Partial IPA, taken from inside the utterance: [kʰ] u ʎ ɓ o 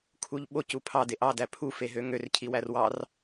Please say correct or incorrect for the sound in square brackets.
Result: correct